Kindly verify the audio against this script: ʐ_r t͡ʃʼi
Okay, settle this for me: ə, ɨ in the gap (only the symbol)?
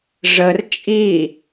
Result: ə